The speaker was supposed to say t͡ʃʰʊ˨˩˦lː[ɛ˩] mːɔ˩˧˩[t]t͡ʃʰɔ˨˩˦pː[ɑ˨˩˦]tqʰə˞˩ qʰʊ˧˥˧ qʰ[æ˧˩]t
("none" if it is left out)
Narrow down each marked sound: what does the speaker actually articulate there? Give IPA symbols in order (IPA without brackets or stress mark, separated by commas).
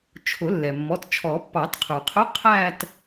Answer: ɛ˩, t, ɑ˨˩˦, æ˥˧